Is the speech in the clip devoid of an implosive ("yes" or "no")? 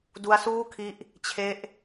yes